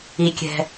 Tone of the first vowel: low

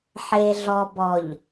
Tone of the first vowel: low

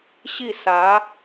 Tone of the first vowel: falling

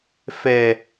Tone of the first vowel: low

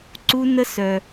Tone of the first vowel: high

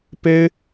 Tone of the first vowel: high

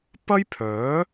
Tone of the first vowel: high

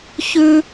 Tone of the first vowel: high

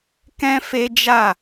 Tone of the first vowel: high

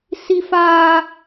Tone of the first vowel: high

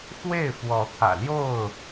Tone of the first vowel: falling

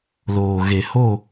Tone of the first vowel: low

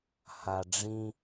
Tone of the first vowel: low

